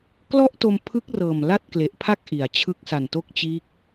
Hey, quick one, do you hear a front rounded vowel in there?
no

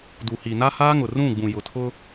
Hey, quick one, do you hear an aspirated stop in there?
yes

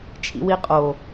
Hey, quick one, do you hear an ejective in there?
yes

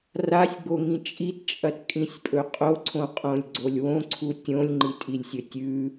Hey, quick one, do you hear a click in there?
yes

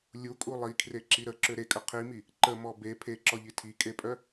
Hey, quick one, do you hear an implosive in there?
no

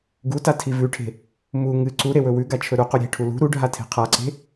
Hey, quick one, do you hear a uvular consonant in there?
yes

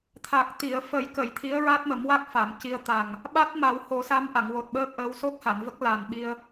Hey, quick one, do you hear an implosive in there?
yes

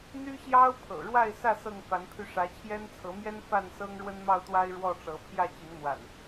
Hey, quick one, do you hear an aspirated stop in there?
yes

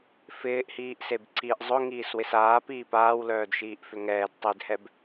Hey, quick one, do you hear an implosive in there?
no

